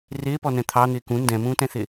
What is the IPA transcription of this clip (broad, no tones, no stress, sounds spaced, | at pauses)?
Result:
r ɪː p ɔ n ɛ̃ t̪ʰ ɑ n̪ ɪː k ũ n d ɛ̃ m ũː t ɛ̃ θ ɪ